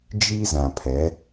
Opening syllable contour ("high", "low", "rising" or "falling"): high